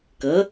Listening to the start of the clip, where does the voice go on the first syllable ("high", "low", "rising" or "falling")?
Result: rising